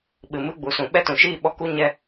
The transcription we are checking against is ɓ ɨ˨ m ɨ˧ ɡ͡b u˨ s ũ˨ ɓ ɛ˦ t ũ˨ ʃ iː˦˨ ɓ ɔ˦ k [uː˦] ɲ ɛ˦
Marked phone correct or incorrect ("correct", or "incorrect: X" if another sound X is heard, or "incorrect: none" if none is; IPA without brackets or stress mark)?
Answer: incorrect: u˦